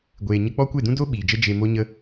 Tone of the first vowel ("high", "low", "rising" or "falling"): low